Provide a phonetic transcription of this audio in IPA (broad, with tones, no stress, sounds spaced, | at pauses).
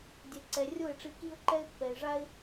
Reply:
dʲ ɛ˨ ǀ ɛ˨ rʲ o˦˨ ɪ̯ ʈ͡ʂ i˧ k i˦ ʊ̯ ǃ ɛ˦ ɪ̯ pː ɛ˨ ɪ̯ ʐ a˦ ɪ̯